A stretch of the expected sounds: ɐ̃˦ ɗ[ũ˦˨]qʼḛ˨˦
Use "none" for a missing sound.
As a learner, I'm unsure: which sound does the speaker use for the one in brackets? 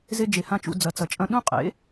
ũ˦˨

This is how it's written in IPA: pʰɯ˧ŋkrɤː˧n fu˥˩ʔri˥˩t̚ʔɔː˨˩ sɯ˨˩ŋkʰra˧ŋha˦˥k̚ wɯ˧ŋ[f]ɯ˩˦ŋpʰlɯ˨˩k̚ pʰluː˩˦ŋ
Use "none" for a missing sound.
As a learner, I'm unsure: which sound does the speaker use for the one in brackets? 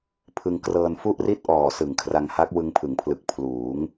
pʰ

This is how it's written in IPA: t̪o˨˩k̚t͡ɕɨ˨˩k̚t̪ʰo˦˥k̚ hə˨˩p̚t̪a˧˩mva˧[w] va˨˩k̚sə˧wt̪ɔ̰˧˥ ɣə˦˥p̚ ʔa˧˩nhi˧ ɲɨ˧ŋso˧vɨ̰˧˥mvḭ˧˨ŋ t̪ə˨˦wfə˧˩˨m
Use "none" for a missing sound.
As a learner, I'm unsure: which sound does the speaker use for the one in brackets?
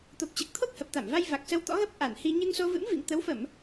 j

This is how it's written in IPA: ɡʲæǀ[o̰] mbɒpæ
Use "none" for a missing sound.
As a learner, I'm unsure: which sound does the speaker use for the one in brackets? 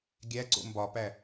o̰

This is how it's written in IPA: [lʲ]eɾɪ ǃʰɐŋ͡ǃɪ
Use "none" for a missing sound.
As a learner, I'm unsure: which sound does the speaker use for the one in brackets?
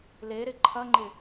l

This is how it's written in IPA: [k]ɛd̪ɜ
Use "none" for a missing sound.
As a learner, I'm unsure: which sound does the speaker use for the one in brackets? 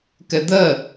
k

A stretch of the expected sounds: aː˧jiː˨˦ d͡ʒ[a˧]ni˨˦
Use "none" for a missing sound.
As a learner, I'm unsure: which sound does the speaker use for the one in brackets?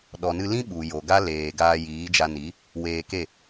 a˧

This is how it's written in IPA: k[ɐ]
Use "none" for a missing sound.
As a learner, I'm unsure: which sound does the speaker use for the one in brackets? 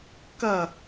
ɐ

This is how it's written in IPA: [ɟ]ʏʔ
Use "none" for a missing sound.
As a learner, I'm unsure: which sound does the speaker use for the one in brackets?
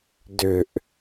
d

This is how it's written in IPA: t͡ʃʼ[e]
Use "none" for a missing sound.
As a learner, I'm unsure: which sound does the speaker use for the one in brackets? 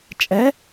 ɛ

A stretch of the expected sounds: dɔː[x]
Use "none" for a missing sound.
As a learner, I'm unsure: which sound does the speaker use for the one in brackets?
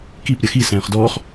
χ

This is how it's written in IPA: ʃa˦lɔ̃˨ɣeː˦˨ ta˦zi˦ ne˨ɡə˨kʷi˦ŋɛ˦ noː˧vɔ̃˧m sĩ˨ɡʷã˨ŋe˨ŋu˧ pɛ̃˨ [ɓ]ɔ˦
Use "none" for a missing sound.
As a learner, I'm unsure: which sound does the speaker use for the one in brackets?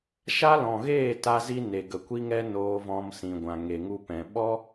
ɓ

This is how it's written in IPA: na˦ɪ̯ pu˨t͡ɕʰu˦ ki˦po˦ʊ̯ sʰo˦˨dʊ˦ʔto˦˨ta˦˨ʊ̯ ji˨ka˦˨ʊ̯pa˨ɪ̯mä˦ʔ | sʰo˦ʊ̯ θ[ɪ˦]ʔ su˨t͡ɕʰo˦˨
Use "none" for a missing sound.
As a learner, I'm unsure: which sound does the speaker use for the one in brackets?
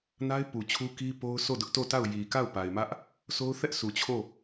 ɛ˦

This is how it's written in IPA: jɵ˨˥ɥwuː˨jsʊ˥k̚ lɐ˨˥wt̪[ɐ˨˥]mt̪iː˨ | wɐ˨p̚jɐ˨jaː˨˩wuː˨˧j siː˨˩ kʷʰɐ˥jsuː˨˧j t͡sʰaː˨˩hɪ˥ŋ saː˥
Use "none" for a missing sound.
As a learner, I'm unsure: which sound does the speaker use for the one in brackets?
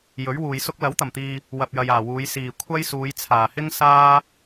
ɐ˨˩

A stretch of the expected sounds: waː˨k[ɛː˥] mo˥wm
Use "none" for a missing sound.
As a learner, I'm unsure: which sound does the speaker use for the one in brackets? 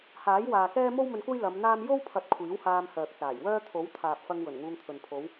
ɛː˥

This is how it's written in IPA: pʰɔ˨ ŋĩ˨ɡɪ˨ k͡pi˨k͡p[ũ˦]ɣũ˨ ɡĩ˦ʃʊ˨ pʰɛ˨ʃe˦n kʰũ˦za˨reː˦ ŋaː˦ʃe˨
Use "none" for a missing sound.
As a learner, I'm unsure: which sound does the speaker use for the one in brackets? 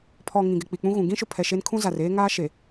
ũ˦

